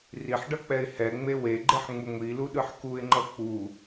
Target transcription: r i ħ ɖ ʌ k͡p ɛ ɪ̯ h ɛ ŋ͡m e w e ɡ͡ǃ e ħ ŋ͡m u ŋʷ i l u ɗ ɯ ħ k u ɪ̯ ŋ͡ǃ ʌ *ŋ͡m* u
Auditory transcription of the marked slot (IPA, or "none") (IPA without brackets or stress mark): k͡p